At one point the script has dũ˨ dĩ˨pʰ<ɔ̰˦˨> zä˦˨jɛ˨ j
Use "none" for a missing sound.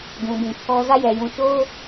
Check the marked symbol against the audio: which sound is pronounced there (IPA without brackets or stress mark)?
ɔ˦